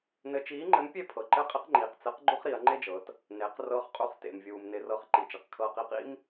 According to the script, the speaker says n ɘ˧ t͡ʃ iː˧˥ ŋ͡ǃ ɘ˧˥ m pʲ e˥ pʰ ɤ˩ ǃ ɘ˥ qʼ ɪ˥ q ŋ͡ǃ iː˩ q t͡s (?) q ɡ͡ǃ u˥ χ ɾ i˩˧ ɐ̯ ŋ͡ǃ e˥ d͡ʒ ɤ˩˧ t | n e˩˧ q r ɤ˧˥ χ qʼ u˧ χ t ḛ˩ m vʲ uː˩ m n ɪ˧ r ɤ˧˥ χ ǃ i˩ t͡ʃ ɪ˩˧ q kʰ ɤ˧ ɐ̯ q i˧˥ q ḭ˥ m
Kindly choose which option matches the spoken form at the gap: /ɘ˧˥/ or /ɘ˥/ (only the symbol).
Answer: ɘ˧˥